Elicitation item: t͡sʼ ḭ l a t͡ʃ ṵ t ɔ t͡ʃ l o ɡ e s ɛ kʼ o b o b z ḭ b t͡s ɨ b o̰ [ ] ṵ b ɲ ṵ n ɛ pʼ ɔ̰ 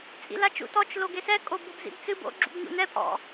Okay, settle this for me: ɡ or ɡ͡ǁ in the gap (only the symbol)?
ɡ͡ǁ